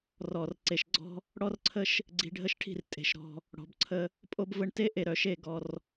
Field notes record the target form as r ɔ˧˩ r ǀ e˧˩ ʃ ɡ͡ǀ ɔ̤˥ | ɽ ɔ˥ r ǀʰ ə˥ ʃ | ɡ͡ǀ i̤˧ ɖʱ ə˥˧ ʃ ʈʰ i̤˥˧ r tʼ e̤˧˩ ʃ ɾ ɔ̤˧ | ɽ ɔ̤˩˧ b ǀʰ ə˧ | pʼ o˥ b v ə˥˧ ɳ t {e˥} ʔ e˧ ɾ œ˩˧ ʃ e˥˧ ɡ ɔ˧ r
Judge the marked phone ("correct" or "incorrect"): correct